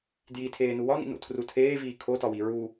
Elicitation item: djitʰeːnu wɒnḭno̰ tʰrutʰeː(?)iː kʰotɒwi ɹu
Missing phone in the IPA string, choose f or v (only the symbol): v